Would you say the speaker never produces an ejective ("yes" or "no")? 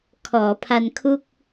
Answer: yes